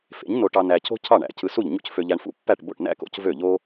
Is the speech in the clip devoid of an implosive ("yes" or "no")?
yes